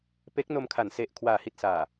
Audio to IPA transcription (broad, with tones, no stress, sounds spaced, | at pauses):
p e˦˥ k̚ n o˧ m kʰ a˨˩ n s e˨˩ ʔ kʰ w aː˩˦ h i˨˩ t̚ s aː˨˩